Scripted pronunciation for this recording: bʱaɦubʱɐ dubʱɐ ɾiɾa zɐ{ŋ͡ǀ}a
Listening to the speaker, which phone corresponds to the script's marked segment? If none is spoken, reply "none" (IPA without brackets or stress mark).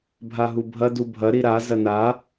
n